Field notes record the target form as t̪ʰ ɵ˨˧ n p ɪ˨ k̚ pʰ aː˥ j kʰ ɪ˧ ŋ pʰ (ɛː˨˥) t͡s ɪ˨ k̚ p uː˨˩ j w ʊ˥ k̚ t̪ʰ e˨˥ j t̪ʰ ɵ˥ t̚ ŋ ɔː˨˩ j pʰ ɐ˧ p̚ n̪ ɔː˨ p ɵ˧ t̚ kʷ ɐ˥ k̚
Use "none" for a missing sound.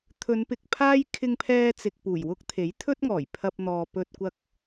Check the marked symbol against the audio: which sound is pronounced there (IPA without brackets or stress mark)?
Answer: ɛː˧